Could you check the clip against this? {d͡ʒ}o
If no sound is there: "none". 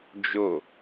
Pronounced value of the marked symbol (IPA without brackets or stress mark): d͡ʒ